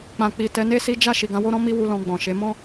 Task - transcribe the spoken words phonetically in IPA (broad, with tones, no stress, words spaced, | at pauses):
k͡pã˨ k͡pi˨tɛ˨˦ne˦si˦ d͡ʒa˦˨ ʃi˨ɡã˧wo˦ɾɔ̃˦ mi˦wu˧ lɔ̃˧ɡ͡bɔ̃˨ʃe˨˦ mɔ̃˦